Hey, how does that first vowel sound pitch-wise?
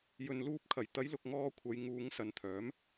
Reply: low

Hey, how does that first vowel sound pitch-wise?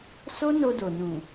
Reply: high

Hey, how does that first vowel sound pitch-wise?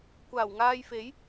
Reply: low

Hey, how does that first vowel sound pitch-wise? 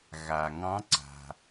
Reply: low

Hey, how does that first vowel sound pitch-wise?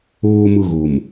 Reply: low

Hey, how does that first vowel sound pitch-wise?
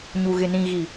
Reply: low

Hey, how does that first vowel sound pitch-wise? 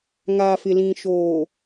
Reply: low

